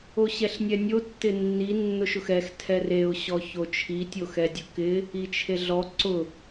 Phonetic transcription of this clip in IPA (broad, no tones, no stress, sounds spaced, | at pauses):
o ɕ ɛ ɬ nʲ ɛ nʲ o tː ɪ nː i nː ʊ ʃ ʊ x ɛ x tʰ ɛ r e ʊ̯ ɕ ɔ ç o t͡ʃʰ i tʲ o x ɛ dʲ ʊ k ɪ | i t͡ʃʰ e ɮ ɔ ǀ ʊ